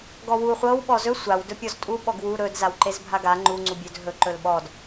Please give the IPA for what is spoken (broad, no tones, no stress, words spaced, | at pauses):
ɡɔwu χʷɤw ɓɔzɵ sʷaw dɵpʲɔztʼu ɓɔɡwu ɾɵd zawǃezbʱaɡa ŋ͡ǃu ŋ͡ǀubʲɵd ɦɵ ǃɵlɓɔd